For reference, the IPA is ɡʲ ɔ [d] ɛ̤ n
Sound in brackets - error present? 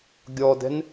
no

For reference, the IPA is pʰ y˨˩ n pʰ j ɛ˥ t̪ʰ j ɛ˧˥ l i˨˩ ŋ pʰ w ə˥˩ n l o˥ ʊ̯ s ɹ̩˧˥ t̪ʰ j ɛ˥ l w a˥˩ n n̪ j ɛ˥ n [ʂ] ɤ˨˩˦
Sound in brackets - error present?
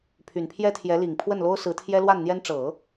yes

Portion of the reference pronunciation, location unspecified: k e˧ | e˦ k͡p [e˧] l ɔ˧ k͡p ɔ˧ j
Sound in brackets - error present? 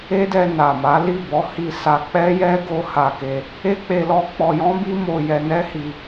no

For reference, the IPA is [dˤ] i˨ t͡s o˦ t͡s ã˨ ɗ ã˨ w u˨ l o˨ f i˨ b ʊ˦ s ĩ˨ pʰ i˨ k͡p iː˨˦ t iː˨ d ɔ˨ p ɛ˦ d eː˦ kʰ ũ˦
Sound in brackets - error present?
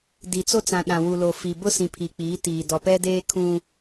yes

